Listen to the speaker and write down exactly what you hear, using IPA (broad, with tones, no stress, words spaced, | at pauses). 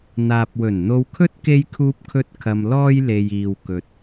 n̪aː˨p̚wɵ˨˩nn̪o˧wkʰɵ˥t̚ ke˧jkʰuː˧p̚kʰɵ˧t̚ kʰɐ˧mlɔː˥jle˧j iː˧wkɵ˧t̚